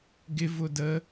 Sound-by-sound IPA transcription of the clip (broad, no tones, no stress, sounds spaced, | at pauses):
ɡ ɪ v ʊ d ə